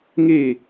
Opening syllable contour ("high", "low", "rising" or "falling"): falling